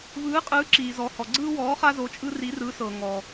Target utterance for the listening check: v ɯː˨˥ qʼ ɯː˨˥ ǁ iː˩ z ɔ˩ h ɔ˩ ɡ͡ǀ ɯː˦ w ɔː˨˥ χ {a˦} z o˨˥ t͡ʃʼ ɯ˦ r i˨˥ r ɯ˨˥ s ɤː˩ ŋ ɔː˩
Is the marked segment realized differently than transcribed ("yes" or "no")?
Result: no